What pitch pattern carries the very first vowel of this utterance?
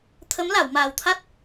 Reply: rising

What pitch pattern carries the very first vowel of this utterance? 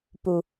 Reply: low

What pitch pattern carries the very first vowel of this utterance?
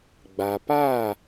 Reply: low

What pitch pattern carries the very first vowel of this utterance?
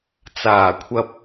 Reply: low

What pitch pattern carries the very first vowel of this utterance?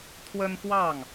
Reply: high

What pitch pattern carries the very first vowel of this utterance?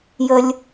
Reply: low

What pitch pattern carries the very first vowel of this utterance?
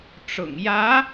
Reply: low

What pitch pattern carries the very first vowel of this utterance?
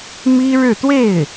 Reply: high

